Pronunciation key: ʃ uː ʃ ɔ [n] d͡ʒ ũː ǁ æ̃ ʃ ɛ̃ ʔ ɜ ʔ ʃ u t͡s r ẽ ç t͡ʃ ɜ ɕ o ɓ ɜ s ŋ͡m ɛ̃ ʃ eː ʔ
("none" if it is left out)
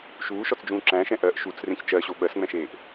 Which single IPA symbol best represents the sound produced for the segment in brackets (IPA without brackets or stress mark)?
t͡s